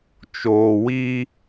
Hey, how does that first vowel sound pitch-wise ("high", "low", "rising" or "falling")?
low